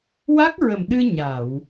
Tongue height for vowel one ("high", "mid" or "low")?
low